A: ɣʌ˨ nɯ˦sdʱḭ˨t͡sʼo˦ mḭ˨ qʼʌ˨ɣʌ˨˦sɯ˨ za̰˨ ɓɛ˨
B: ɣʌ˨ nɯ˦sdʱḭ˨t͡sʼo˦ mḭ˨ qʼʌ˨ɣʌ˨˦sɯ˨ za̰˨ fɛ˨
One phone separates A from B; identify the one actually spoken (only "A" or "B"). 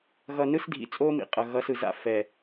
B